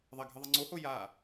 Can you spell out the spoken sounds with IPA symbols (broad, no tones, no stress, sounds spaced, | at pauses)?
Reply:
ðˤ ɐ ɡʱ ɨ ðˤ ɐ ŋ͡ǀ o h o j a